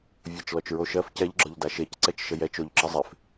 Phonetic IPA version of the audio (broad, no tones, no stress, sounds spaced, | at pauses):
vʲ ɜ t͡ʃ l ɔ t͡ʃ ɹ o ʃ ɜ f c ɛ ʎ ɡ͡ǁ ɔ ʎ d a ʃ e c ǀ ɛ t͡ʃ ʃ ə j ɛ t͡ʃ o ʎ ǁ ə zˤ e f